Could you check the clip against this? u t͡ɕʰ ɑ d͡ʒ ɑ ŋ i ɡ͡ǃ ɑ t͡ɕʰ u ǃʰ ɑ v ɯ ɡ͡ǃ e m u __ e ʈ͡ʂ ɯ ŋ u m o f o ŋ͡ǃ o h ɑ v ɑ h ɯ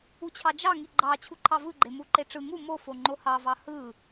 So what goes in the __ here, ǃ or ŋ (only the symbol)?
ǃ